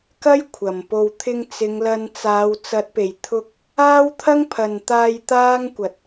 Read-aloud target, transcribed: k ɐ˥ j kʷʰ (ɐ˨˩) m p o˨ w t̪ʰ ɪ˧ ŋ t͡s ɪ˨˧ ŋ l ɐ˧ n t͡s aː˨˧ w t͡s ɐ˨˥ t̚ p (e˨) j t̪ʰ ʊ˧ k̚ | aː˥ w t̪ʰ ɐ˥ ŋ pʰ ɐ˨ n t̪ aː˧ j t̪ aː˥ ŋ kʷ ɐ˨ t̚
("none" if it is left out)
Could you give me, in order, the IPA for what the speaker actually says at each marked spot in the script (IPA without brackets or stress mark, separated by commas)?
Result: ɐ˨˩, e˨˩